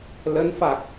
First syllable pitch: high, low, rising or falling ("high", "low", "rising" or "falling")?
rising